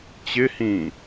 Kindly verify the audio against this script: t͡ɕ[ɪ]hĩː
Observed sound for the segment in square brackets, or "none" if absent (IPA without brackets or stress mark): ɪ